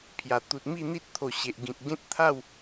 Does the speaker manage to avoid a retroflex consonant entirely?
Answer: yes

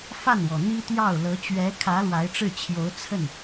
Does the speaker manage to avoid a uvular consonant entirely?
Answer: yes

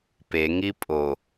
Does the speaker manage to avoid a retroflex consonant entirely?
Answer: yes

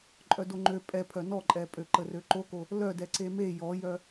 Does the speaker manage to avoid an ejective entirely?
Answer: no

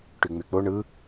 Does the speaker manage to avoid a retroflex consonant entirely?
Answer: no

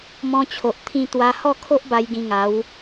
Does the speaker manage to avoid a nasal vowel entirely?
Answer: no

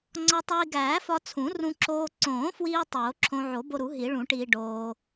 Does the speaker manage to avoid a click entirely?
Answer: no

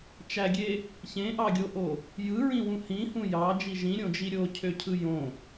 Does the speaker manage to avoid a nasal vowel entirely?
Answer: no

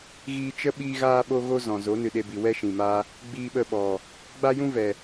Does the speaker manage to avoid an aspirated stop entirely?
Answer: yes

